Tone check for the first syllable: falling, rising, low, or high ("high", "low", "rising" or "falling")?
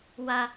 high